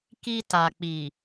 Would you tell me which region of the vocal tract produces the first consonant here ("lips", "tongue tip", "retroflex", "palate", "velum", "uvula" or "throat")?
velum